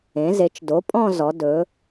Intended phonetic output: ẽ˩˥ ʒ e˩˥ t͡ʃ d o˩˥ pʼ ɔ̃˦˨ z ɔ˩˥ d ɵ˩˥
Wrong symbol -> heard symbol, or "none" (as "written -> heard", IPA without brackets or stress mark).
ʒ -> z